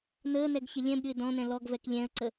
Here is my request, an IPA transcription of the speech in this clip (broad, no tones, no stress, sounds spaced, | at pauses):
n əː n ɛ ɡ ç ɪ lʲ ɛ̃ b ɾʲ ʊ ɪ̯ d ɔ̃ n ɛ̃ l ɔ ɡ v ɛ k lʲ ɛ̃ ə̯ ǀ ə